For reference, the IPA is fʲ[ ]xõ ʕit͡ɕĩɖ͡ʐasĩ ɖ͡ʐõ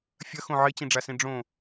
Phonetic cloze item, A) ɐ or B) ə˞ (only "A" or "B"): A